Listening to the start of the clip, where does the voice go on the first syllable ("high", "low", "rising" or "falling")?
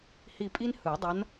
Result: falling